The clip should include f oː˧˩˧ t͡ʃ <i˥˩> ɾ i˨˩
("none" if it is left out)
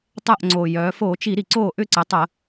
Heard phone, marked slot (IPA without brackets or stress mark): i˧˩˧